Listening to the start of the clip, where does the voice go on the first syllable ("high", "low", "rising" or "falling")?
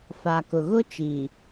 low